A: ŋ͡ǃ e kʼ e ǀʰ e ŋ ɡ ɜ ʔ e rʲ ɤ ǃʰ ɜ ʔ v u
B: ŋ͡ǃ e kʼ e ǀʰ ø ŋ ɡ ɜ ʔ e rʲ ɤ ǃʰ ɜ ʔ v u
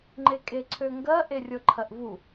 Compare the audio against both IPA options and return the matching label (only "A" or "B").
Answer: B